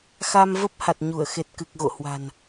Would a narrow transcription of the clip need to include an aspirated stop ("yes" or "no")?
no